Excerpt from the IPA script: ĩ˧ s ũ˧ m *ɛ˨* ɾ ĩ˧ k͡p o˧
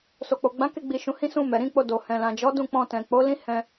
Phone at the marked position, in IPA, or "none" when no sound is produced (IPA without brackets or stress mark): ɛ˨